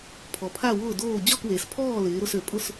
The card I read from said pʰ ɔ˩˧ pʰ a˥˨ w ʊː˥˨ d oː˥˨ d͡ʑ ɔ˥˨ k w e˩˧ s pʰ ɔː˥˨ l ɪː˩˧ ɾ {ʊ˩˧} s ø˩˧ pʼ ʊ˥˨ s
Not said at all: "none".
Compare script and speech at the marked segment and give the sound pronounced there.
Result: ʊ˩˧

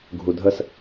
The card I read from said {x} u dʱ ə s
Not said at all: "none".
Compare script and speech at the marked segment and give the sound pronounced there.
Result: ɡʱ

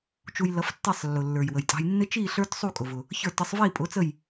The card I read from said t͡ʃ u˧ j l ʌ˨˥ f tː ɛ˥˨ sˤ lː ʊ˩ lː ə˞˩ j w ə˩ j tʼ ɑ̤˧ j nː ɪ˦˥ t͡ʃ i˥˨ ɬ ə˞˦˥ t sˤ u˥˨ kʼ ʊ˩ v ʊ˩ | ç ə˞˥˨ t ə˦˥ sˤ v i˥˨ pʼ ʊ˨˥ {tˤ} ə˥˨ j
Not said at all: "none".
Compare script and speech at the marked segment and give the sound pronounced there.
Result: t͡s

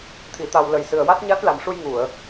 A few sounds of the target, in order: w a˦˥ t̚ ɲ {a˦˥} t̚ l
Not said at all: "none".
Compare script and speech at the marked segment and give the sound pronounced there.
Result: a˦˥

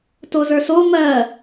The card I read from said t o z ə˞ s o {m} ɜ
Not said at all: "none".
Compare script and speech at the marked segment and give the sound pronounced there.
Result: m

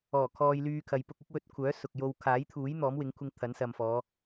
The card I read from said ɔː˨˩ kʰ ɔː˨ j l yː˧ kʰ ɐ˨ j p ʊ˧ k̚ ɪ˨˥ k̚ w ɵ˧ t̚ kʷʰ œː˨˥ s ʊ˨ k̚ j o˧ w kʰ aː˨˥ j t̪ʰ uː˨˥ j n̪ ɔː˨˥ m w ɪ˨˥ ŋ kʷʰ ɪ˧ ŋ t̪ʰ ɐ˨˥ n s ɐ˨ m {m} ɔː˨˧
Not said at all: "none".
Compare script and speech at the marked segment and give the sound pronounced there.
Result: f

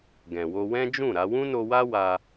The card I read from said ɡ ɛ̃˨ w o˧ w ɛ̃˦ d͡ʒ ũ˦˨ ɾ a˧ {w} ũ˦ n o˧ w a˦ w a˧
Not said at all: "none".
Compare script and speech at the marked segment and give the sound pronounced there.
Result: w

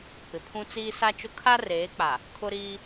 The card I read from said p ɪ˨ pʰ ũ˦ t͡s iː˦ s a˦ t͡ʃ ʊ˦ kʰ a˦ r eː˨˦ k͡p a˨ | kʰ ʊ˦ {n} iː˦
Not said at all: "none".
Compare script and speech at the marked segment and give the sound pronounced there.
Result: ɾ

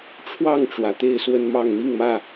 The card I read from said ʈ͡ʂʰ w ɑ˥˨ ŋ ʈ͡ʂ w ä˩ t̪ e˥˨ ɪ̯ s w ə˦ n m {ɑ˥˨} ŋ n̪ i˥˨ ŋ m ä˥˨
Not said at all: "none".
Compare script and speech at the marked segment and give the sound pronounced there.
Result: ɑ˥˨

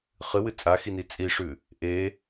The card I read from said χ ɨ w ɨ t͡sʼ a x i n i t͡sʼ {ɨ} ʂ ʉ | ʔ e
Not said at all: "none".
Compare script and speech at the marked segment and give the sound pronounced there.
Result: i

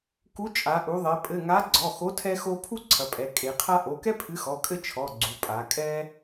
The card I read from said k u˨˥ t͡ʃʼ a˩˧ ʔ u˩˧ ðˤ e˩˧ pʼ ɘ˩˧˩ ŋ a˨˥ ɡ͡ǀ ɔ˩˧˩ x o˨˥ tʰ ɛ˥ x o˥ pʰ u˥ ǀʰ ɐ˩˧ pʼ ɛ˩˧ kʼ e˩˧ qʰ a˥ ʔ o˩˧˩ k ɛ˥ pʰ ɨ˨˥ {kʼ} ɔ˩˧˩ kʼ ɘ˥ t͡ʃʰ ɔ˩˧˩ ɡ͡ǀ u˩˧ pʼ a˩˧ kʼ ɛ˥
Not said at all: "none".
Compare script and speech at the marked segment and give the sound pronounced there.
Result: x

